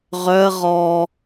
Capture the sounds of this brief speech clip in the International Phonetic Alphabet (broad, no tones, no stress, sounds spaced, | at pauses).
ʁ œ ə̯ ʁ ɔ